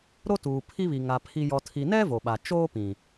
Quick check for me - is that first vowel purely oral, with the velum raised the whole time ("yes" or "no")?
yes